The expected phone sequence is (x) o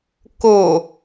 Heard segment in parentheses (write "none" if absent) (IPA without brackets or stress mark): k